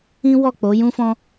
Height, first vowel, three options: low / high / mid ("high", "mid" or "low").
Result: high